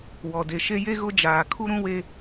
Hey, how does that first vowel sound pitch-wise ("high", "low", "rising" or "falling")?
low